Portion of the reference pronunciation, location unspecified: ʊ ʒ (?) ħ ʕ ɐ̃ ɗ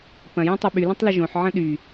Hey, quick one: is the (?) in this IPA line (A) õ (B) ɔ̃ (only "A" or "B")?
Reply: A